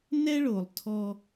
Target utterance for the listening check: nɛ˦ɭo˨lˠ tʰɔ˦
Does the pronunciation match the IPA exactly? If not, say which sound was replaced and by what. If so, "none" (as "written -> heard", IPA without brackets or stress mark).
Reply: none